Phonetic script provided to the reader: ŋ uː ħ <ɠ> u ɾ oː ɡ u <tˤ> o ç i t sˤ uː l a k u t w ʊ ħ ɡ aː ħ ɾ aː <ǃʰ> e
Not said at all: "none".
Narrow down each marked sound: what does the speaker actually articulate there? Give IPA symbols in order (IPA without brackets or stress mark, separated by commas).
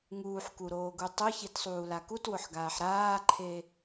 k, tˤ, ǃʰ